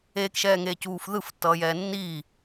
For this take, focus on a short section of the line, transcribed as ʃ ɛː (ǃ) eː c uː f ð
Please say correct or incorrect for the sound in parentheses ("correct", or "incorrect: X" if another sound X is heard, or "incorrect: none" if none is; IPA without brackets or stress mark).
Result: incorrect: ŋ